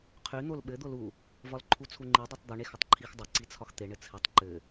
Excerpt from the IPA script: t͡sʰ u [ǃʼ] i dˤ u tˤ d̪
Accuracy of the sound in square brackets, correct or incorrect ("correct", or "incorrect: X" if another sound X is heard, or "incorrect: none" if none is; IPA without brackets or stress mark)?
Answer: incorrect: ŋ͡ǃ